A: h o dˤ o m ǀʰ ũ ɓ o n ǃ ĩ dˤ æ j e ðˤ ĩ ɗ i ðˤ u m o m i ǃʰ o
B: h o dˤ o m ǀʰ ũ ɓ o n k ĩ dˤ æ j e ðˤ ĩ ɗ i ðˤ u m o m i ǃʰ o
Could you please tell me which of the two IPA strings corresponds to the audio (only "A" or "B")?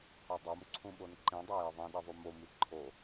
A